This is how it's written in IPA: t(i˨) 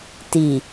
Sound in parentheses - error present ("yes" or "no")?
no